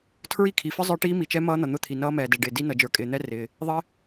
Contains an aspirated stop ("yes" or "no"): yes